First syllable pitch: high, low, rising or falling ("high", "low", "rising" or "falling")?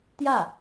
falling